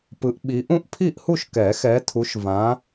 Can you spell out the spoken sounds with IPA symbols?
pɯ˨˦ʔɓi˨˦ ʔũ˥˨ʔpʰi˥˨ʔhu˥˨ʃ kɛ˨˩˦xɛ˨˦tʰu˨˦ʃvã˨˦

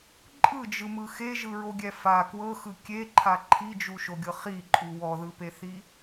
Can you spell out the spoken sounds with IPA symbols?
ǃʼɯd͡ʒɯmɯ xeʒɯɹoɡʲɛ fa kwɤxɯ kʲeǃʰa ǃʰid͡ʒuʃoɡʲɤ χiǃʼu wɔðɯpeθi

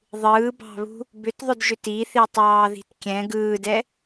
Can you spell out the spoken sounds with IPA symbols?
ðˤɯːbɑ̤βṳ | bʏtðˤʏdʒʏt iθitˤɑːði̤t kʲɛ̃ ɡɯːdɛ

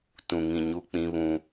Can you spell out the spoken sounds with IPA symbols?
tũ˨ŋĩ˨ ɲu˦k͡pĩ˦βũ˦

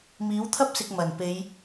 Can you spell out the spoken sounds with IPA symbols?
miː˨˥wt̪ʰɐ˥p̚sɪ˨k̚ mɐ˨˩n pe˨˧j

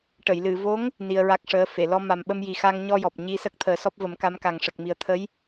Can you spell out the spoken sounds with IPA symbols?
ʈə˨˩˨jlɨ˨˩˨vo˧˥ŋ | ni˧ə̯ɹa˦˥k̚ʂəː˧˥fe˨˩˨ lɔ˧ma˨˩mɓə˧mji˨˩ xa˧ŋɲɔ˧jɔ˨˩p̚ ɲi˧sə˦˥k̚ t̪ʰəː˨˩˦sɔ˦˥p̚və˨˩˦m ka˧˥mka˨˩ŋ ʂə˨˩k̚mi˨˩ə̯t̪ʰə˧˥j

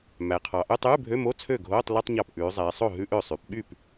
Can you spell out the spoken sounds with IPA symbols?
mæ˩˧qʰɑ˩˧ ʔø˧˥˧tˤʉː˧˥˧bʱø˧˥˧mo˧˥˧ t͡sʰø˥˩ɡʱoː˧˥˧tˤ li˧˥˧tˤɲɑ˧˩p ʔʉː˩˧zˤɛː˩˧sˤo˥˩ ɦʉ˧˥˧ʔø˧˩sˤy˩˧pɓy˥˩p

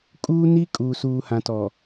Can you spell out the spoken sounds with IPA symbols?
kʼuː˦ni˦kʼuː˨ suː˨hã˨tɔ˨

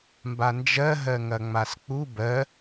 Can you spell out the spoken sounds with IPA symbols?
mband͡ʒɜ ɦɜŋɐŋ͡mask͡pu bɜ

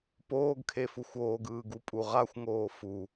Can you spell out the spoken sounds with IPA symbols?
poːɡkʰefuxʷ oːɡɯːɡupʼu ʁaxʷŋoː fu

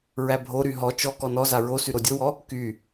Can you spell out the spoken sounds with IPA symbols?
ɹæbʱoɾy ɦɔ t͡ʃɔ kɔnɔza ɹosy ɾodʲowɔ | ky

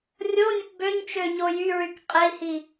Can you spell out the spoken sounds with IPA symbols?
rʲonʲəp bøɲt͡ʃøɲo jyɹyk qʼei̯hi

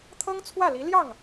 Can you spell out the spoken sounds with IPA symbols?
t̪ʰɤ˥ŋt͡sʰwä˥˩li˧˥ ljɑ˥˩ŋ

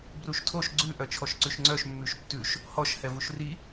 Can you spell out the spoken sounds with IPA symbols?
bruʃtʰoʃ ɡ͡ǀʉ ʔœt͡ʃʰɔʃǀʉʃŋ͡ǀœʃ mːʉʃtːʉʃ | hɔʃ hɛvuʃri

